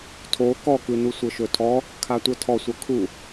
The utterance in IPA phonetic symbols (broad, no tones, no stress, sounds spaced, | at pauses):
tʰ o k ɔ k ɯ n u sʷ ɤ ʃ ɵ tʰ ɔ | kʰ a tʷ ɤ tʰ ɔ sʷ ɤ kʰ u